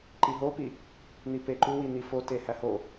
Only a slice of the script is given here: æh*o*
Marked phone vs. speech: correct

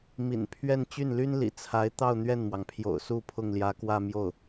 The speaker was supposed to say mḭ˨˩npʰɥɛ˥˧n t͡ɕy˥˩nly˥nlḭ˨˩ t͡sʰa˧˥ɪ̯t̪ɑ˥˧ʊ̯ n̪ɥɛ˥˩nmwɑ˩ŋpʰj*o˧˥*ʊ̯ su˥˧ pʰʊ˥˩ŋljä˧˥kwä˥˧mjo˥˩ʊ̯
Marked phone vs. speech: incorrect: o̰˨˩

